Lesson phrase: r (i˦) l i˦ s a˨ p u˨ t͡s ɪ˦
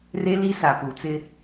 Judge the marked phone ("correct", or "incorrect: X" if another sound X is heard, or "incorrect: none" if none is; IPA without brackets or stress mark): incorrect: e˦